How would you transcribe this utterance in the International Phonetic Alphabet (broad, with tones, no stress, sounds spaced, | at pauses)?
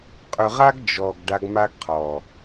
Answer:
qʼ ʏ˨ ʁ a˦ ɡ d͡ʒ ɔ˨ ɡ ɖ a˧ ɡ m a˦ ɡ qʰ ɔ˨